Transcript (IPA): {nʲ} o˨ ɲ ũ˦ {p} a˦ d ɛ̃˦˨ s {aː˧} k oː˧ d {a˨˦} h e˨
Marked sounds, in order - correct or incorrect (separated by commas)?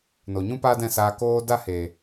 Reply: incorrect, correct, correct, incorrect